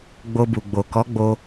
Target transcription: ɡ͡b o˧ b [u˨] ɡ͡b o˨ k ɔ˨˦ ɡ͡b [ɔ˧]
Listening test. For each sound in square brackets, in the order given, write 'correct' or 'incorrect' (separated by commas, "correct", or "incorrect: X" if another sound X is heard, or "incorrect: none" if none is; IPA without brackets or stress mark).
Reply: correct, incorrect: o˧